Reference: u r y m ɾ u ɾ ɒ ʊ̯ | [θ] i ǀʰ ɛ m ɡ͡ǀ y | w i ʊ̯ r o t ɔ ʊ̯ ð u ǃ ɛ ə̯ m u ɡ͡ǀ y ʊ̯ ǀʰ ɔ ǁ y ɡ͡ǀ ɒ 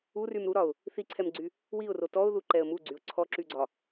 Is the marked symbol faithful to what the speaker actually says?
yes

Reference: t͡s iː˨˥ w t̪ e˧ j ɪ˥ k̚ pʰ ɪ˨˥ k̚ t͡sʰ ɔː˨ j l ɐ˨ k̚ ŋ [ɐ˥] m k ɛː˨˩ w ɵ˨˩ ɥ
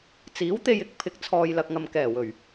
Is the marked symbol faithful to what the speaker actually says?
no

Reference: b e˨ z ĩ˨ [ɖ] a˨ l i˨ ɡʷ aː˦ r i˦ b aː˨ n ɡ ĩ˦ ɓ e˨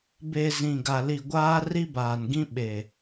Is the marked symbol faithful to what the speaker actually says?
no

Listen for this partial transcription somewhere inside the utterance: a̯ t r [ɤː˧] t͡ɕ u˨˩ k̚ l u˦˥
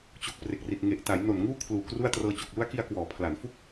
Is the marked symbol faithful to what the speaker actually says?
yes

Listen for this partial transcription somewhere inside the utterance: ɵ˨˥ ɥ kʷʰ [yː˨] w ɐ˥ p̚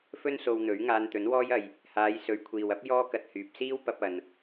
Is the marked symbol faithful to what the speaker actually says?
no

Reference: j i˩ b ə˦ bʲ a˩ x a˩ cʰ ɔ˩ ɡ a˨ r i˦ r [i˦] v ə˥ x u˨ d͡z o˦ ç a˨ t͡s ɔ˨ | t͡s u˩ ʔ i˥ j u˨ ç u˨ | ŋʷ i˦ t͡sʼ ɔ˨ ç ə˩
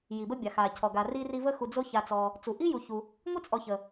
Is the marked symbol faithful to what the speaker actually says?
yes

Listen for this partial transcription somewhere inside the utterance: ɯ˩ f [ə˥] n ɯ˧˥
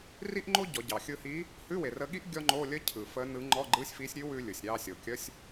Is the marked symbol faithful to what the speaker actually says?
no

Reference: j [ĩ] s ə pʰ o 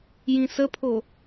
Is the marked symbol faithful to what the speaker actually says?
yes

